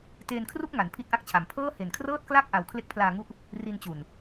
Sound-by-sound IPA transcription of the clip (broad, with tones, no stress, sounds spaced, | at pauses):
t eː˧ n kʰ r u˥˩ k̚ ŋ a˩˦ n pʰ i˥˩ t̚ ʔ a˥˩ k̚ t͡ɕʰ a˨˩ m pʰ ɤː˥˩ h e˨˩ n kʰ r ɤː˥˩ t̚ k l a˥˩ k̚ ʔ a˧ w kʰ l e˦˥ k̚ pʰ l aː˧ ŋ u˦˥ ʔ | r i˧ n t͡ɕ u˨˩ n